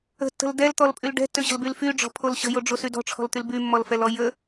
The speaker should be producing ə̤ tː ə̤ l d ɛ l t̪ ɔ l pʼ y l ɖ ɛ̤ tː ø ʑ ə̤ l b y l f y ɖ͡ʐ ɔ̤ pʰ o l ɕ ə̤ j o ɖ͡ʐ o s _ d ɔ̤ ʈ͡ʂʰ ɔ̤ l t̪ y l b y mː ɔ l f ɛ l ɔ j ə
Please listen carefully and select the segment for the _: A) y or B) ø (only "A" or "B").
A